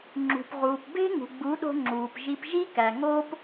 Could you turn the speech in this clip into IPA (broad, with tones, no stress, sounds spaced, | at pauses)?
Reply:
ŋ͡ǁ ṳ˨ p ʁ uː˨ p b e̤˦ ŋ ṳ˨ ɡ͡b u˨˦ ɗ o̤˧ ŋ͡ǁ uː˨ p ʒ i˧ p ʒ i˦ k æ˨ ŋ oː˧ p